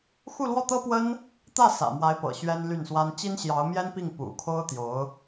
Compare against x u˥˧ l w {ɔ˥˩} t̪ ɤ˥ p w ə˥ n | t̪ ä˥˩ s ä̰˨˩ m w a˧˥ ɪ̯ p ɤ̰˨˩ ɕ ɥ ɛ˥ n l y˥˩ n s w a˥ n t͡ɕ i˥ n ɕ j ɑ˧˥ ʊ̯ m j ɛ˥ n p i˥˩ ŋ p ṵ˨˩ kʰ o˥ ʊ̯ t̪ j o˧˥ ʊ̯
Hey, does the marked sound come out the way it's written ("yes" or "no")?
yes